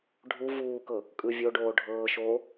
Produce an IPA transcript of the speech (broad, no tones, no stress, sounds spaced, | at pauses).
ɖʱ u v uː k ɤ | kʼ ɯ vʲ o ɖ oː ɖʱ ɤː ʃ oː